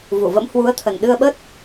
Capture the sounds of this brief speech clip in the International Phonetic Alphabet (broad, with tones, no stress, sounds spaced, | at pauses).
v u˧˩ v ə̰˧˥ m h w u˨˦ ə̯ t̪ʰ ə˨˩ n ɗ ɨ˧ ə̯ ɓ ə˦˥ t̚